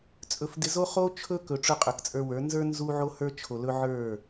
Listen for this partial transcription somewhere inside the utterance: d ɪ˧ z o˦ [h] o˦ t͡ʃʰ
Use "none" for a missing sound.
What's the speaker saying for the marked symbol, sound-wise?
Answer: χ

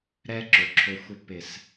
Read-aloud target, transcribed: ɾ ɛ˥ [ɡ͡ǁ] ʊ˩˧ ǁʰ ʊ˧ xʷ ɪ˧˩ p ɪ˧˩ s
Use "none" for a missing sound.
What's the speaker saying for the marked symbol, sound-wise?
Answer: ǁ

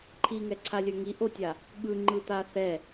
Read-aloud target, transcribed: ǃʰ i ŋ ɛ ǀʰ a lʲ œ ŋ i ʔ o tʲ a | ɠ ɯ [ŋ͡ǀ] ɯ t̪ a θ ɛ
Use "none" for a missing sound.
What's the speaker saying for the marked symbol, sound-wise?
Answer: ŋ͡ǃ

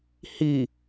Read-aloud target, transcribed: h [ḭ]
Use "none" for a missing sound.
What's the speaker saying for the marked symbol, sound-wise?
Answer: i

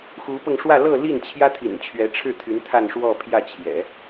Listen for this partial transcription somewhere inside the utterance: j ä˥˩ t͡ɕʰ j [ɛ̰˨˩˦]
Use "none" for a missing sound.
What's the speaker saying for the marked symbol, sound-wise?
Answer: ɛ̰˨˩˦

